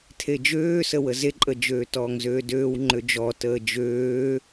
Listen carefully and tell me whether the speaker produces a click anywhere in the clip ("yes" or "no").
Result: yes